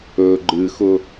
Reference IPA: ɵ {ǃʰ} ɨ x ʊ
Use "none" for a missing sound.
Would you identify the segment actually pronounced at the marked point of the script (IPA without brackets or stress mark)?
ɡ͡ǃ